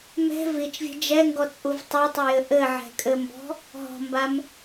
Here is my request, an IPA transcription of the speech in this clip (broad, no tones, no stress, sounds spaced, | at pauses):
m ɛ̤ v i t͡ʃ vʲ ɛ̤ d͡ʒ ɛ ŋ ɡ ɔ t͡sʼ u v tˤ o tˤ ɘ j ɘ ʔ ɘ ʕ ɛ̤ kʼ ɘ m b ɔ̤ | ɦ ɔ̤ m b a m